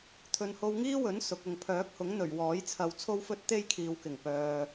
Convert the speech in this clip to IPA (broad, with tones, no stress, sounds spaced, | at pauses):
t̪ʰ ɵ˨ n h o˧ w ŋ iː˥ w ɵ˨˥ n s ʊ˨ k̚ ʊ˨ ŋ pʰ œː˨˥ k̚ h ʊ˨˥ ŋ n̪ ɵ˨˩ ɥ w ɔː˨˥ j t͡sʰ ɐ˨˧ w t͡sʰ o˥ w f ɵ˥ t̚ t̪ e˥ j kʰ iː˨ w k ɪ˨˩ ŋ p œː˨